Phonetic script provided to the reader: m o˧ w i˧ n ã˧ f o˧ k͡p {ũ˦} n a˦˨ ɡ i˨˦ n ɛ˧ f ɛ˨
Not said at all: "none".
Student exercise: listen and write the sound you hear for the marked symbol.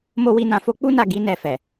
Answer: u˦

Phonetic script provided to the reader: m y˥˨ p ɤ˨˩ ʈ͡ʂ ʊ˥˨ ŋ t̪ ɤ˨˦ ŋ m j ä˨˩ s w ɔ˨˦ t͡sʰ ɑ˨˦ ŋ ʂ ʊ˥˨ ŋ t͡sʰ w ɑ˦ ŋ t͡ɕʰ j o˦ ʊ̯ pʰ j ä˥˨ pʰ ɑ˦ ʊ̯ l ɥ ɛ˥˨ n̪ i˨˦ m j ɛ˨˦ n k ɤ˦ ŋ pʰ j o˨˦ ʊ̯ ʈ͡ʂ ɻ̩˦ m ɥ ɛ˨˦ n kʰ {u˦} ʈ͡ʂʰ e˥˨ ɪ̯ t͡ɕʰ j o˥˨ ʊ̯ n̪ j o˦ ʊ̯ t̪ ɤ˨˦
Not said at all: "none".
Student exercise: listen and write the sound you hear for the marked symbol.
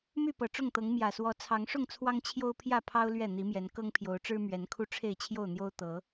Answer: u˦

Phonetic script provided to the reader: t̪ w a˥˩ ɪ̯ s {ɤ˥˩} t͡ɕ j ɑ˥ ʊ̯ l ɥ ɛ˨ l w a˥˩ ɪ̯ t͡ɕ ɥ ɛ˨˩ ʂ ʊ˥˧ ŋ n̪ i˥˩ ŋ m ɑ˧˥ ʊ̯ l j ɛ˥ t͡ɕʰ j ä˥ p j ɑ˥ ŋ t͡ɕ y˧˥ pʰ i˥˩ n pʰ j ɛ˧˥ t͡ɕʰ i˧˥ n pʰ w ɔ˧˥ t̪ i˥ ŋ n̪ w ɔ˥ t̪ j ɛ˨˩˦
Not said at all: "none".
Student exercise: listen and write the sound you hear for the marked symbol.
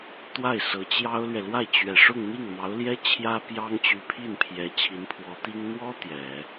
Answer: ɤ˧˥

